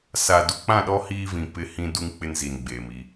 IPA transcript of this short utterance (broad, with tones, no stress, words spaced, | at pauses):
sa˨du˨k͡pã˦˨ɗɔ˦ hiː˦vĩ˨ pɪ˦ hĩ˦du˦ŋ k͡pɪ˦nzi˨n ɡ͡beː˨mi˦